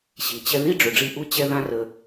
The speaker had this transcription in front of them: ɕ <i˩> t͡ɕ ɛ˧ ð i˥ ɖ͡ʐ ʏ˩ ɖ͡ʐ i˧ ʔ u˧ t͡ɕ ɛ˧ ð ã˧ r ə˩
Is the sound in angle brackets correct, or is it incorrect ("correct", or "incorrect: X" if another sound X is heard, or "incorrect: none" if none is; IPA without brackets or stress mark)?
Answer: correct